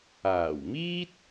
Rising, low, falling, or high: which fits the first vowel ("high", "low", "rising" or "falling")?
low